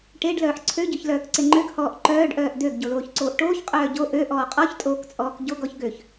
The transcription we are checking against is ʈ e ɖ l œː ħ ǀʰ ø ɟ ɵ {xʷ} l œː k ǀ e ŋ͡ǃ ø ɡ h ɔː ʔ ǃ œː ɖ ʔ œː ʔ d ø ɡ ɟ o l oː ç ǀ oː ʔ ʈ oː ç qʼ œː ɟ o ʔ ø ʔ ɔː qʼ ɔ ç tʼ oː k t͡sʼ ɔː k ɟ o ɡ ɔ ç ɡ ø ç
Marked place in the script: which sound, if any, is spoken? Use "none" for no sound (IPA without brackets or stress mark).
ç